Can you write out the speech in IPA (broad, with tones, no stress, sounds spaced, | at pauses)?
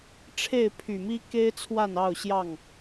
ʈ͡ʂʰ e˥˨ ɪ̯ pʰ y˨˩ m i˦ k e˦ ɪ̯ t͡sʰ w a˥˨ n ɑ˥˨ ʊ̯ ɕ j ɑ˥˨ ŋ